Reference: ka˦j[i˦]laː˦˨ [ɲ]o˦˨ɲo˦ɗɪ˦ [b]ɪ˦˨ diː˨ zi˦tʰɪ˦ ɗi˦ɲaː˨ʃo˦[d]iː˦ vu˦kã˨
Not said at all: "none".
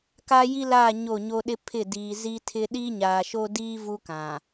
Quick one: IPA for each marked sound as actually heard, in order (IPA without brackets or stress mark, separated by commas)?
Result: i˦, ɲ, pʰ, d